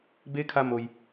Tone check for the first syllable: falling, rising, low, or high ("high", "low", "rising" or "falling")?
rising